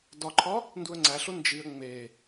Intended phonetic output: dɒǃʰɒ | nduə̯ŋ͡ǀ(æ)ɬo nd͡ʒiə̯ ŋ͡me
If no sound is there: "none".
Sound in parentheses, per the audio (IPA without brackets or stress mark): æ